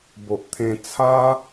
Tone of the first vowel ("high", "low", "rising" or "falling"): low